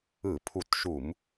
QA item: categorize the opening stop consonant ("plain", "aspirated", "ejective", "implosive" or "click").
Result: aspirated